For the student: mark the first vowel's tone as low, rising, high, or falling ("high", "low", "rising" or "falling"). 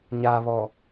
low